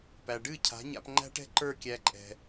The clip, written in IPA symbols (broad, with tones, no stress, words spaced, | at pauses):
pæ˨ɖɨ˦˨cʰa̤˨˦ ɲa̰˧p ŋ͡ǃæ̤˦ʈɛ̤˦ ǃə˞˦˨kʲæ˧ ǃʼɛ̤˧